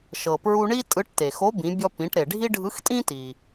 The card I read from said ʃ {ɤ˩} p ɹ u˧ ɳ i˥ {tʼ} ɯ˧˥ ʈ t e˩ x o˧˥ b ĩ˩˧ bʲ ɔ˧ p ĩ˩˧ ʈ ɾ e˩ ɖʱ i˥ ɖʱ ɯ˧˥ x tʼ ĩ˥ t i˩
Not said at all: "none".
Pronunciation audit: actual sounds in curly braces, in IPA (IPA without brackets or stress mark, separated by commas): ɤ˩, tʼ